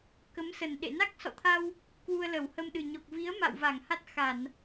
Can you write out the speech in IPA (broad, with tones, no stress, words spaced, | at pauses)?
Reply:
kə˨˦msə˨˩nɗḛ˧˨ na˦˥k̚sɔ̰˧˨t̪ʰa˧w | kwu˧ə̯lə˧˩whə˧mɗɨ˨˩ ɲɔ˨˩k̚vi˨˦ə̯ ma̰˧˨wva˧˩ŋ ha˦˥t̚xa˧˩˨n